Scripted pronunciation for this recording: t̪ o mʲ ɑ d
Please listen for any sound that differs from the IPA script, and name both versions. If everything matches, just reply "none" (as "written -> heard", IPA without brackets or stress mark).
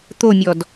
ɑ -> ɔ